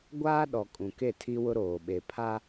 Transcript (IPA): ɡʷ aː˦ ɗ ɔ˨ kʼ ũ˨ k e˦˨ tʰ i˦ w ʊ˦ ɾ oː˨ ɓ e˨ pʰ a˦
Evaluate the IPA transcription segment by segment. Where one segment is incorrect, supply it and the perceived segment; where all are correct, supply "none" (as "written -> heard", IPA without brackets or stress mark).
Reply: none